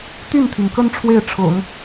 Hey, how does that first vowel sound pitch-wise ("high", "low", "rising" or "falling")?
falling